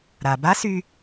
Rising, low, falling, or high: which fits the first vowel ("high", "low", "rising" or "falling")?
low